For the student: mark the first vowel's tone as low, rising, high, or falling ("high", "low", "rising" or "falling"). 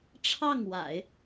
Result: falling